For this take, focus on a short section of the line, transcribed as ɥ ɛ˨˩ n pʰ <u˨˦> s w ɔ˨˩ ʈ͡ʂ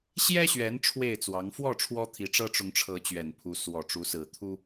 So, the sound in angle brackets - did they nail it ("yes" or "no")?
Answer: yes